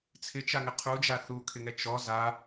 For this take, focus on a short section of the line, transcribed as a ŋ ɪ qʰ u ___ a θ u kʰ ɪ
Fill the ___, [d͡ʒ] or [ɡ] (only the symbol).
d͡ʒ